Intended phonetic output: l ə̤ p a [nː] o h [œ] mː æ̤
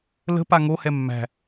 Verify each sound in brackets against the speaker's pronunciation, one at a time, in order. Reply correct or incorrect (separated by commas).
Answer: incorrect, incorrect